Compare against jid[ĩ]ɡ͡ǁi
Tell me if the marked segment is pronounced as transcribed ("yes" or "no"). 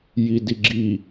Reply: no